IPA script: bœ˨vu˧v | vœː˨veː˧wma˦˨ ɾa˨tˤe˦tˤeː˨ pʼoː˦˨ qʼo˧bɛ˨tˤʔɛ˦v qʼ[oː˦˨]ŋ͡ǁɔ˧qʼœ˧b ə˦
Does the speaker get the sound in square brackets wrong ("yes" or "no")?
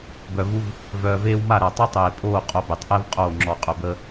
no